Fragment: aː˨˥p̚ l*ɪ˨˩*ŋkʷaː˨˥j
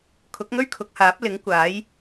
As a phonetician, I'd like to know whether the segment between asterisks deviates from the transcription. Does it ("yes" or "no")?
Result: yes